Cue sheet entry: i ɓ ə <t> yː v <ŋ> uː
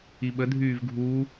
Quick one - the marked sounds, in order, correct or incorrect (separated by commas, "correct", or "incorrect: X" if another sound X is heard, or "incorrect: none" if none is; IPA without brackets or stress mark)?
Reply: incorrect: dʱ, incorrect: ɡʱ